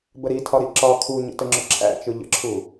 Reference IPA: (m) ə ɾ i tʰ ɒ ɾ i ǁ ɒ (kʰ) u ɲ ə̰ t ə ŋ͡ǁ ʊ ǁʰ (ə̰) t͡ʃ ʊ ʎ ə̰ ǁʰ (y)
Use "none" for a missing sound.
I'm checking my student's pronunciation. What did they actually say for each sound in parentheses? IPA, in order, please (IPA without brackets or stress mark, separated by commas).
b, kʰ, æ̰, u